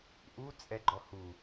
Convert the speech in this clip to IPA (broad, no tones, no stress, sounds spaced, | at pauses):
ʔ u t͡sʼ ɛ ɡ͡ǃ ɔ h u